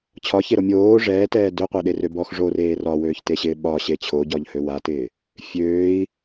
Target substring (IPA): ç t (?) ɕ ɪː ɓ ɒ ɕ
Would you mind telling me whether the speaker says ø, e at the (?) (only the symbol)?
e